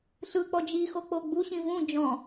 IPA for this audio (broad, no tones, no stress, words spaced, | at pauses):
ɬɯk͡pɔ d͡ʒixok͡po ɡ͡buɕĩ vũ d͡ʒɔ̃